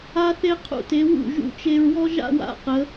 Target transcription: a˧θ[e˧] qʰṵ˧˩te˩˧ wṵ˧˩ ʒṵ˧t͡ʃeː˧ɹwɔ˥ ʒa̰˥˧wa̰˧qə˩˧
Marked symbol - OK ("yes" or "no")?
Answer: yes